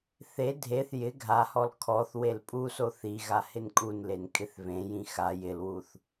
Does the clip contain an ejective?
yes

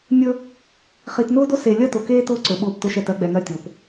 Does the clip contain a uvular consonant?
yes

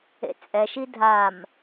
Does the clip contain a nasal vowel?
no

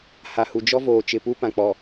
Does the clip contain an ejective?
no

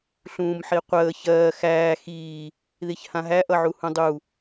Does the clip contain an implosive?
no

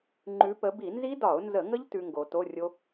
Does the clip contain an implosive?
no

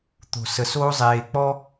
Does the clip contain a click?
no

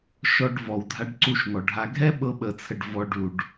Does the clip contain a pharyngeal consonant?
no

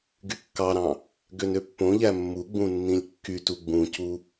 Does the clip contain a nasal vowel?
yes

